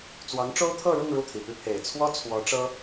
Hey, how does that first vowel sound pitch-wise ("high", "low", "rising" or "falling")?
rising